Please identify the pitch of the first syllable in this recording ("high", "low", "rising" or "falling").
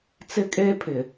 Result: high